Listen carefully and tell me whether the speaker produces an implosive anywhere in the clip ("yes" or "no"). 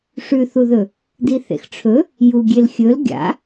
no